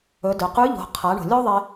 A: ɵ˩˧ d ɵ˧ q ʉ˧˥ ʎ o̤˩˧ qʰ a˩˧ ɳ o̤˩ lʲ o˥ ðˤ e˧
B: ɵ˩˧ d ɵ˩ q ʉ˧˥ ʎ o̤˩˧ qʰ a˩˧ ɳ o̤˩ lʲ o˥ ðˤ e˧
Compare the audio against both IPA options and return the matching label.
B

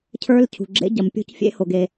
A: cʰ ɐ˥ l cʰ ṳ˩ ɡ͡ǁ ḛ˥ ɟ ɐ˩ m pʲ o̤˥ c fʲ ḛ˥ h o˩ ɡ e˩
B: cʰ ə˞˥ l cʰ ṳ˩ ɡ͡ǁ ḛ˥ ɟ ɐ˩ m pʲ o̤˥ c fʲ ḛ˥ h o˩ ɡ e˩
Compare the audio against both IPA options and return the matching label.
B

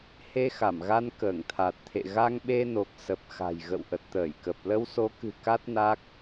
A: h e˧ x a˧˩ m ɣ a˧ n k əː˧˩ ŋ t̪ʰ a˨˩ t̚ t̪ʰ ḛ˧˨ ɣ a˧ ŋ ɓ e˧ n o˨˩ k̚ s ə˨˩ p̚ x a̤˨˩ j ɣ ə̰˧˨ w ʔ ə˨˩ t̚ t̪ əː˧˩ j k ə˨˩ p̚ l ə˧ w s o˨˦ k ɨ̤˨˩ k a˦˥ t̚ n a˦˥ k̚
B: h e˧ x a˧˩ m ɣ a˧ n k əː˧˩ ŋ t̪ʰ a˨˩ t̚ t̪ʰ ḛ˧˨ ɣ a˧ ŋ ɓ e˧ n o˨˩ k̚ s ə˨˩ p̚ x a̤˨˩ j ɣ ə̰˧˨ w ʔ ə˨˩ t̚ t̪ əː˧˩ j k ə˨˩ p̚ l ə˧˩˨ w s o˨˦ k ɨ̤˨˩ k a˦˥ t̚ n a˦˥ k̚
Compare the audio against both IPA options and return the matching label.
A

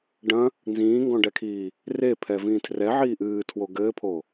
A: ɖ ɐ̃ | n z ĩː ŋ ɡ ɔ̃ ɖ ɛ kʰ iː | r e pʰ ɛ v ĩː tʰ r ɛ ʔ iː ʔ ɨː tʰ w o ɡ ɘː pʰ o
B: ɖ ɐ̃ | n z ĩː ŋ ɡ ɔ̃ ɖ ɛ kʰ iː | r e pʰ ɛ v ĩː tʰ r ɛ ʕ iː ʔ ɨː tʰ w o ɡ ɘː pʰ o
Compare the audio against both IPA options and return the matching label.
B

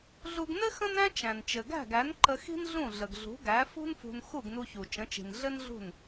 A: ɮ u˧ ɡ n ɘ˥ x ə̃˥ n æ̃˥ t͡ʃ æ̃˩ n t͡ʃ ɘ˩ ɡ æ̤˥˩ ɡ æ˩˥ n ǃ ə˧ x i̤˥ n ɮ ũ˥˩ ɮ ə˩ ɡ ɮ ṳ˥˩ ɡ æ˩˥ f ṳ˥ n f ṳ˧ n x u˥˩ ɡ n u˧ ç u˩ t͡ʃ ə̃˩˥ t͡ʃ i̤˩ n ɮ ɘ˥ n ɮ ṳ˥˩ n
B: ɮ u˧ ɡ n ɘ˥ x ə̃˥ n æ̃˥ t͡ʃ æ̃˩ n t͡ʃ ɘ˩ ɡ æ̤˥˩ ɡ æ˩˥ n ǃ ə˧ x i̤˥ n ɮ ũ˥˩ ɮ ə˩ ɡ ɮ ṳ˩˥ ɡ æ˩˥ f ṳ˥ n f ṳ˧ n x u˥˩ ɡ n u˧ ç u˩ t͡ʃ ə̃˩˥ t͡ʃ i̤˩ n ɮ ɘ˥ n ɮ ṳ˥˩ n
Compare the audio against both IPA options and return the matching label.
B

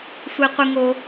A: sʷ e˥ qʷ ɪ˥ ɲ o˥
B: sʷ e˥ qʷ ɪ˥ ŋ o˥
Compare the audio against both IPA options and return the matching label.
B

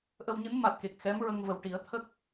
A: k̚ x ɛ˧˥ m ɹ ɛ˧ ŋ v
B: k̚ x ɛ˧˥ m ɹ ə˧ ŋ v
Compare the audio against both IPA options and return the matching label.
B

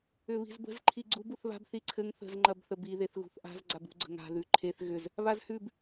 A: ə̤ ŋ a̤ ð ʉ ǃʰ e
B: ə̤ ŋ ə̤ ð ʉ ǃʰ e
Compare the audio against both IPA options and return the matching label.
A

